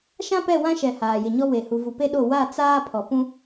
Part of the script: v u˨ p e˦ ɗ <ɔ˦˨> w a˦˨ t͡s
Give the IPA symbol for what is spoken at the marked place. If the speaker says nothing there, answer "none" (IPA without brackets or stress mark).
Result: o˦˨